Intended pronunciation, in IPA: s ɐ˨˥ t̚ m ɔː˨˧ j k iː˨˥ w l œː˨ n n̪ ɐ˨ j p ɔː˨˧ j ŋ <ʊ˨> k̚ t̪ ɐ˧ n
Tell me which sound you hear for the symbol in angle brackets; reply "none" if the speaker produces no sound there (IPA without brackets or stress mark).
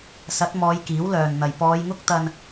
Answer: ʊ˥